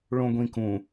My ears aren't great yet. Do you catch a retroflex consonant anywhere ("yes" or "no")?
yes